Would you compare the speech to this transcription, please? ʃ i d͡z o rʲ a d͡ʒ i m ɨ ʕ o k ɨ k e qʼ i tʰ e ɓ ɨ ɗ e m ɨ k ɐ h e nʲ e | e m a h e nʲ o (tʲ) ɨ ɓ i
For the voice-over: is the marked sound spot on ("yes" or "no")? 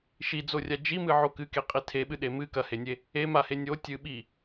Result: yes